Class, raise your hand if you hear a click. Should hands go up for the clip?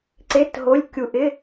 yes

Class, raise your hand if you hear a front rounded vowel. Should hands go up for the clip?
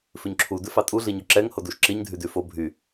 yes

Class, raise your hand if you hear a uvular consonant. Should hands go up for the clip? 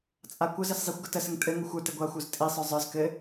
no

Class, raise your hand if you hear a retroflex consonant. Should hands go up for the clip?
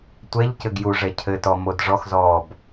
yes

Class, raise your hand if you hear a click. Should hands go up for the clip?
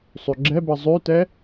yes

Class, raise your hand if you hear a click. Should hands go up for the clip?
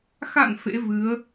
no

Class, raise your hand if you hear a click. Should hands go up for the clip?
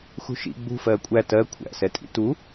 no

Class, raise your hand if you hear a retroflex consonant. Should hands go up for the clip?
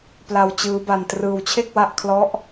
no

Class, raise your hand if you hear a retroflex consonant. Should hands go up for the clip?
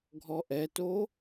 no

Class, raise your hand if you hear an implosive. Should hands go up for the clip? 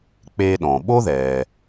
yes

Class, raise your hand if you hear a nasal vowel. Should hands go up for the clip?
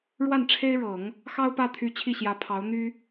no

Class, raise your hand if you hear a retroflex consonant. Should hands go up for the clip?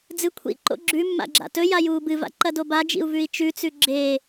no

